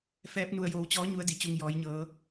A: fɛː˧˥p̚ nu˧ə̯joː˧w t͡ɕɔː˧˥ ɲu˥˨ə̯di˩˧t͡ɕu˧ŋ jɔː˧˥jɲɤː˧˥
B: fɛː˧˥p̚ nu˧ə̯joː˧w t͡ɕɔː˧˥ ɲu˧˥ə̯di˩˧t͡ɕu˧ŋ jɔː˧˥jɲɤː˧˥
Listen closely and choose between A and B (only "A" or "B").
B